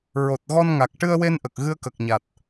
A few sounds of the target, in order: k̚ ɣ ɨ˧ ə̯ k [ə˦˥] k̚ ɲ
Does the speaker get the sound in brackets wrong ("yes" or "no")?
yes